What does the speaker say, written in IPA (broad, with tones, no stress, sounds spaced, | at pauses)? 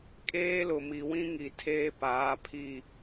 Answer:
kʼ eː˦ l ʊ˨ m i˨ w ĩ˦ ŋ i˨ tʰ eː˦ p aː˨˦ pʰ i˦˨